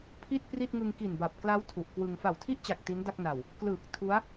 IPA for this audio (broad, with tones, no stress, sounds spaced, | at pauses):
pʰ i˥˩ t̚ p r i˥˩ t̚ ŋ ɯ˧ ŋ k i˨˩ n b a˨˩ p̚ k l a˦˥ w tʰ u˨˩ ʔ k w ɯ˧ ŋ f a˨˩ w tʰ i˥˩ ʔ t͡ɕ a˨˩ k̚ t i˦˥ n d a˥˩ k̚ n a˨˩ w | k l ɯː˨˩ k̚ tʰ u˦˥ a̯